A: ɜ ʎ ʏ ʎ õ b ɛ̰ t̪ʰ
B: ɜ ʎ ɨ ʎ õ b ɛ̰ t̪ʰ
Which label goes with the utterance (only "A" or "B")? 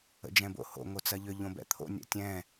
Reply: A